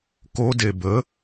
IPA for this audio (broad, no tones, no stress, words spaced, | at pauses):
ko debə